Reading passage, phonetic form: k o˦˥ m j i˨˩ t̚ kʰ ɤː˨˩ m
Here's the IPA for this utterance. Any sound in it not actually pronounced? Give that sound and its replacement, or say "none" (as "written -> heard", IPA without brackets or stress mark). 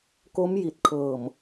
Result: none